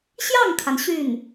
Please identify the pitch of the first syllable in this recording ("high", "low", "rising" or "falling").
falling